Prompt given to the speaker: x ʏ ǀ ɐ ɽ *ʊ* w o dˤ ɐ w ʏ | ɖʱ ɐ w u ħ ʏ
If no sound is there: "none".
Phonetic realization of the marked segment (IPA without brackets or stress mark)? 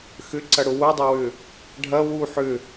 ʊ